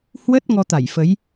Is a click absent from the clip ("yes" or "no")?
yes